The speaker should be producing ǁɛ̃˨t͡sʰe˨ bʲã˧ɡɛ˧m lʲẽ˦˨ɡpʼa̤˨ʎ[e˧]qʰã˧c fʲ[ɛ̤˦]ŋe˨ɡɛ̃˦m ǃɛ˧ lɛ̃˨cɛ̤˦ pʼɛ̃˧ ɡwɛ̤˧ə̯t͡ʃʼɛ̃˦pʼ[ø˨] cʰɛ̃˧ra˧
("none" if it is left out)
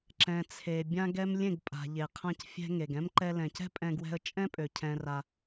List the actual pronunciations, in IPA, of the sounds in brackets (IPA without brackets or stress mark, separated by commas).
e˨, ɛ̤˧, ø˨